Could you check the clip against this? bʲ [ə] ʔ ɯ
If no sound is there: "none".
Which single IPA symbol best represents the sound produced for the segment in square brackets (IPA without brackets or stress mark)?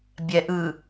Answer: ɛ